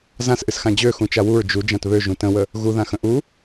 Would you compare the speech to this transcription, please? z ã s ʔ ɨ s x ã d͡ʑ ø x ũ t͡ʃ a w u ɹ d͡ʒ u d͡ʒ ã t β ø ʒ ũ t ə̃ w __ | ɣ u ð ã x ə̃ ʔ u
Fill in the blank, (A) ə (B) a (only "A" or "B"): A